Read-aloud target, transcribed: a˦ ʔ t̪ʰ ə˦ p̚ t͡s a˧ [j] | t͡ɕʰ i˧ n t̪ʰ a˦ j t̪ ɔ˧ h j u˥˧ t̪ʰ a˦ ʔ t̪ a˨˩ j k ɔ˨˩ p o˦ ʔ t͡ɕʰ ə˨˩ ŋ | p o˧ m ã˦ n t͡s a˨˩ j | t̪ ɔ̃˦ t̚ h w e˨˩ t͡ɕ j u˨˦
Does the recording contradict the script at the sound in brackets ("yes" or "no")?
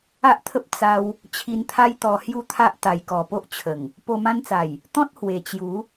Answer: yes